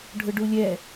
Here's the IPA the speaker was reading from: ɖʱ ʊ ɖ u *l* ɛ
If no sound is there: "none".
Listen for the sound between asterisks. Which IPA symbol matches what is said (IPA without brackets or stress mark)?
lʲ